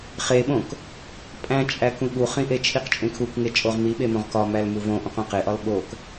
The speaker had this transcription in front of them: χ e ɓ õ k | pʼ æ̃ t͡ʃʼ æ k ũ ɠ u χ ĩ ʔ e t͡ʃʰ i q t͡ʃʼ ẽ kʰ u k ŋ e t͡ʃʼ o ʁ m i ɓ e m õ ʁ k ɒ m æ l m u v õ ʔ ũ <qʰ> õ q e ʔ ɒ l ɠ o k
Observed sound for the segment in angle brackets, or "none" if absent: q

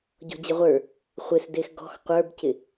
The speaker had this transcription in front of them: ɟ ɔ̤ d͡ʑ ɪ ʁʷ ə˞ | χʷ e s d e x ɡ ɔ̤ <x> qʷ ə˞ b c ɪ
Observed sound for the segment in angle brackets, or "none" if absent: x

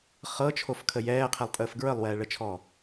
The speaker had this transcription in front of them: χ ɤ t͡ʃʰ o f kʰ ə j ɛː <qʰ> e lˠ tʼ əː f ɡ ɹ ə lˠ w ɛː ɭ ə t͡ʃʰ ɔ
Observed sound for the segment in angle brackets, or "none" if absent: qʰ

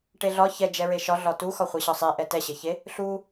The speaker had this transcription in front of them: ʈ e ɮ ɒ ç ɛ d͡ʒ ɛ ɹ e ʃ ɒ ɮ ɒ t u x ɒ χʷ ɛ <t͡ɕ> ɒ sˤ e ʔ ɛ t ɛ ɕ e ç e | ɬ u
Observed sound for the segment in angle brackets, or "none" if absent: ɕ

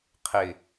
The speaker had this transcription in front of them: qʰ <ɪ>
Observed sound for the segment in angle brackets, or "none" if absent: ɪ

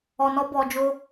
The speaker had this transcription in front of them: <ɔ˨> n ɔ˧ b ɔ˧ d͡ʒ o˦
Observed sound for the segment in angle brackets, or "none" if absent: ɔ˨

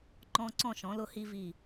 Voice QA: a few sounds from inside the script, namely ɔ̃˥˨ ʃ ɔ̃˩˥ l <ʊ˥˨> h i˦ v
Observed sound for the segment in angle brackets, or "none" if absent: ʊ˦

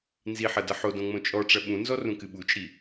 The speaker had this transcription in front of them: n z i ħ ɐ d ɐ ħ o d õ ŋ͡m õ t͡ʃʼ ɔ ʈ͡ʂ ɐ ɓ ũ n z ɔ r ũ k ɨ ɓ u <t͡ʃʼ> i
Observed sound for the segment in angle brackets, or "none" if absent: t͡ʃʼ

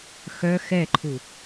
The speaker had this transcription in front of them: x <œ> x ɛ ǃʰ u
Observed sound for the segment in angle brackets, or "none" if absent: œ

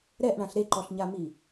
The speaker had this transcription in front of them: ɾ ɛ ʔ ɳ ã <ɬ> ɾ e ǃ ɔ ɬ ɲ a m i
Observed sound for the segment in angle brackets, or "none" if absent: ɬ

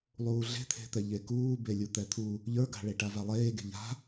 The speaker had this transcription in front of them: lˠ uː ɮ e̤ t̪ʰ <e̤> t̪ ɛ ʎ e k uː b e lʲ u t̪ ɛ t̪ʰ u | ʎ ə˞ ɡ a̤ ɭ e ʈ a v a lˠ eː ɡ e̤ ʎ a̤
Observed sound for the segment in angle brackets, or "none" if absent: e̤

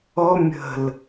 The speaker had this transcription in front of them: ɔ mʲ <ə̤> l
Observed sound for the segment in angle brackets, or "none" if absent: ə̤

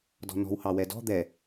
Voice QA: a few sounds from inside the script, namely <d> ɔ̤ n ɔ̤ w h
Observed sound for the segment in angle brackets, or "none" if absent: d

